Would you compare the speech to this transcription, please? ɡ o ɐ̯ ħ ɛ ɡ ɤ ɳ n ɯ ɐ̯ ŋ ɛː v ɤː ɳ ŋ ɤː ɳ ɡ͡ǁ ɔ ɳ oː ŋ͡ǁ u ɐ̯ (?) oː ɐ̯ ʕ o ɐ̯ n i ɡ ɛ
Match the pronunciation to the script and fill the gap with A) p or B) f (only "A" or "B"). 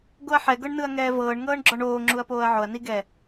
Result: A